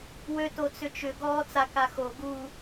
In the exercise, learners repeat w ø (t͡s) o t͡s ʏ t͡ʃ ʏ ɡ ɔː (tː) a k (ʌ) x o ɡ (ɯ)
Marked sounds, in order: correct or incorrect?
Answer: incorrect: t, incorrect: t͡s, incorrect: a, incorrect: u

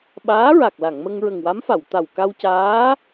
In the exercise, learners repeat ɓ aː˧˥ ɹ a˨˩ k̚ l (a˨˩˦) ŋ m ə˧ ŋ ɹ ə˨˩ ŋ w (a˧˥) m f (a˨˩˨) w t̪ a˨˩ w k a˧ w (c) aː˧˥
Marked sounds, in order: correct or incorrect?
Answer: incorrect: a˨˩˨, correct, correct, correct

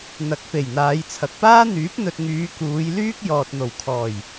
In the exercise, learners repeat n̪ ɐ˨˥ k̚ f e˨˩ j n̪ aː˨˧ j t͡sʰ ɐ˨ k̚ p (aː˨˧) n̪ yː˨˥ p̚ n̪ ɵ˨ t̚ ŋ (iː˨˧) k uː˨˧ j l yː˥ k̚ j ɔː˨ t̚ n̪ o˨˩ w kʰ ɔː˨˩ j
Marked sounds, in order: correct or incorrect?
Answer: incorrect: aː˥, incorrect: yː˨˧

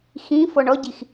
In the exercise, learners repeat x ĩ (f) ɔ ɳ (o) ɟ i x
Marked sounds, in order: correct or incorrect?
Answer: correct, incorrect: ɔ

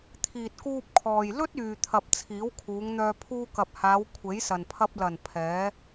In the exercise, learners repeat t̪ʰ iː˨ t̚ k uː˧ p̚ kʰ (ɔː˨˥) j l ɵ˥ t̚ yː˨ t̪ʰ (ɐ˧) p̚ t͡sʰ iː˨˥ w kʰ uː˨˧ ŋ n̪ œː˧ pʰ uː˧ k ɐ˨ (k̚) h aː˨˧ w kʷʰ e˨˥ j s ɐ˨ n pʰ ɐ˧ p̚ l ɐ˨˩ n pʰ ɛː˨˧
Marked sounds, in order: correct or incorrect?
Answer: incorrect: ɔː˨, incorrect: ɐ˨, incorrect: p̚

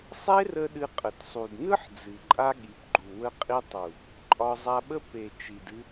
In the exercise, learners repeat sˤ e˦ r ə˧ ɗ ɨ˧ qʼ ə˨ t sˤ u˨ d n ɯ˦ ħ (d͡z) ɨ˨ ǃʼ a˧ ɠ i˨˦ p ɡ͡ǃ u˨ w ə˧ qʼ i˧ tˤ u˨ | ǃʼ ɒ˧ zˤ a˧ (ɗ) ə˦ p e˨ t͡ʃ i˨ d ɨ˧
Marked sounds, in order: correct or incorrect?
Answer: correct, incorrect: ɓ

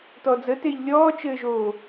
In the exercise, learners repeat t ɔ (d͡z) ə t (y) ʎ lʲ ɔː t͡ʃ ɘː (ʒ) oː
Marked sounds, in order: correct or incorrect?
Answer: correct, incorrect: e, correct

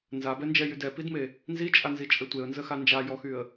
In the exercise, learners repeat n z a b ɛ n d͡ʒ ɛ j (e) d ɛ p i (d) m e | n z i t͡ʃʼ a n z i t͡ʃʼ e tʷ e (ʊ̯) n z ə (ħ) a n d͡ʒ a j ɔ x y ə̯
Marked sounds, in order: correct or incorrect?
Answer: incorrect: y, correct, incorrect: ə̯, incorrect: x

